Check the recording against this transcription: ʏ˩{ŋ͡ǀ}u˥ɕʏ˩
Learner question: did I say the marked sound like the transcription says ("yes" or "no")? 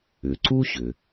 no